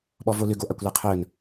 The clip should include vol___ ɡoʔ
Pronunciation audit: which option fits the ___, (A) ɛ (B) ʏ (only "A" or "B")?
B